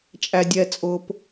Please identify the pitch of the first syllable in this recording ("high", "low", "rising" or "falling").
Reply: high